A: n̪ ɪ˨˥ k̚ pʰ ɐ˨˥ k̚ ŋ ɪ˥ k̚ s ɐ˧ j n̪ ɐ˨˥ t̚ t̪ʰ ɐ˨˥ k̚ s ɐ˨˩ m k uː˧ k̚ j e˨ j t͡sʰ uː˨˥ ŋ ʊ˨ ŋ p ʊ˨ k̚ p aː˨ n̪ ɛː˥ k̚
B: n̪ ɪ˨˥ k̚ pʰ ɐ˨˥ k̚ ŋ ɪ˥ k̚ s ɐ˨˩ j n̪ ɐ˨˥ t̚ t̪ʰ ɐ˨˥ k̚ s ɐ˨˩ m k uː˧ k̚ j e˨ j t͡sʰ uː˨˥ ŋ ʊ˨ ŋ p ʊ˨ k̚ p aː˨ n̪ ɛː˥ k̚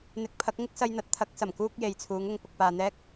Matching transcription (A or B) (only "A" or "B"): A